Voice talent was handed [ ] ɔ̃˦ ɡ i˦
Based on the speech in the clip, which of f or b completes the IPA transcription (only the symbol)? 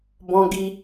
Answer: b